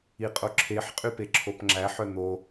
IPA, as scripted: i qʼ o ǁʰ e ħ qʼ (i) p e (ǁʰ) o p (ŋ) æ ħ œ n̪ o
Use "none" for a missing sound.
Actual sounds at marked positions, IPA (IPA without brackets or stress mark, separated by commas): y, ǁʰ, ŋ͡ǁ